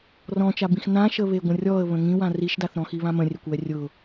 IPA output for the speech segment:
r ɔ̃ t͡ʃ a b ĩ x n ã ʃ ə β e ɡʷ ə̃ rʲ ɔ ə̯ β ə̃ ŋ ĩ w ã r i ʃ d a θ ɾ ɔ̃ x i β ã m ə̃ rʲ ɛ kʷ w ɛ rʲ ʊ

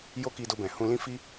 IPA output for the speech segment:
j o˦ k i˧ d o˧ b ɛ̃˨ h ũ˧ l ĩ˦ f i˦

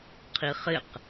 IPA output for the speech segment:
qʰ i χ ɪ q

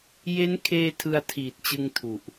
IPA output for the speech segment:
j e˦˥ n kʰ eː˧ tʰ ɯ˧ a̯ tʰ iː˨˩ t̚ t͡ɕ ɯ˧ ŋ tʰ u˨˩ ʔ

